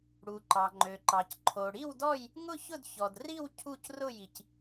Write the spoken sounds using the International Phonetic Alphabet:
ɽ u˩ ǃ ɑ˩ ŋ͡ǃ ø˩ ǃ ɑ˩ c ǃʰ o˩ ɽ i˥˨ w d ɔ˥˨ j | ŋ ʊ˥˨ ç ʊ˥˨ d ç ɔ˩ d r i˥˨ w cʰ u˥˨ c r ʊ˥˨ j i˩ c

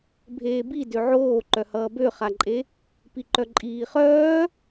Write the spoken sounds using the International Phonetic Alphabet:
bʱ eː b i d ø ʕ oː ǃ œ h ʌː b ø χ a ǃʼ e | p i ǃ œ ǃʼ iː χ œː

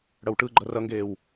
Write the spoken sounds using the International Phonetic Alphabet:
ɽ ʌ w ʈ ɯ ɡ͡ǃ ʌ r ʌ ŋ ɡ eː w

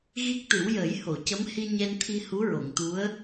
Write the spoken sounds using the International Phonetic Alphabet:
ɣ i˦˥ k̚ t̪ ɨ˨˩˦ w j əː˨˩˦ j h o˨˩˨ c ə˧˥ m h i˧ ɲ ɛ˧ n t̪ʰ i˧ h u˧˥ ɹ o˨˩˨ ŋ t̪ u˧˥ ə̯

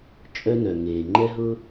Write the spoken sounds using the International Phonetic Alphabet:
t͡ʃʼ œ˥ n œ˨ ŋ eː˨ ŋ͡ǃ ɛ˥ ɦ ʊ˥

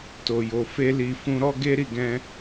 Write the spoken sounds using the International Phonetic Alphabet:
t o˨ j o˨ f e˧ l i˨ f ũ˧ ɾ ɔ˦ ɡ e˦ ɾ i˦˨ ɡ ɛ̃˧

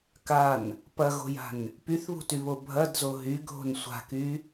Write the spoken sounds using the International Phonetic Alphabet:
k a n | p ɐ ɣ o̤ j a̤ n | p y θ β ṳ t y β o bʱ ɐ d z o ɦ y ɡʱ o̤ n sʷ a̤ k y

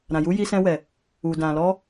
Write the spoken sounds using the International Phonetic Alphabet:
ɾ ã˨ j u˨˦ j i˧ s ɛ̃˧ w ɛ˨ | u˨ d ã˨ l ɔ˧

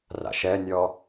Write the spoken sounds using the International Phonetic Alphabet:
r a̰ ʃ ɛ nʲ ɔ

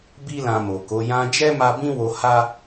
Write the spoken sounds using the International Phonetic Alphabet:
b i˦ l ã˧ m o˨ k o˨˦ j ã˧ d͡ʒ ɛ˦ m a˦ b ĩ˦ w o˧ h a˦

